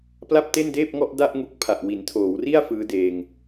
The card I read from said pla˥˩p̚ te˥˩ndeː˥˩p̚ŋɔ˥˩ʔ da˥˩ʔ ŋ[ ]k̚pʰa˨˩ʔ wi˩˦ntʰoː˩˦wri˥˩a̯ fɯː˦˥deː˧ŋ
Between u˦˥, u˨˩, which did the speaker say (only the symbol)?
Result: u˦˥